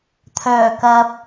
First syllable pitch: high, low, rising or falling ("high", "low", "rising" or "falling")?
low